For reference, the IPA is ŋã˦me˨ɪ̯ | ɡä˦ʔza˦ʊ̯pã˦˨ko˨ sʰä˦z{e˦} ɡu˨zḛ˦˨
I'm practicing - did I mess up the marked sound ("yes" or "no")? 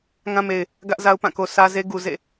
no